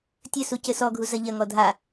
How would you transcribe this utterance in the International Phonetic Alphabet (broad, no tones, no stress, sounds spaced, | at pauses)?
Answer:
tʲ ɘ s u c ɘ s ɔ ɡʱ u z ɐ ʎ ɐ ŋ ɔ dʱ a